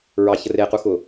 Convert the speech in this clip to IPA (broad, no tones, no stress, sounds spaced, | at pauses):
ɹ ɑ ç ə r e q u x ʊ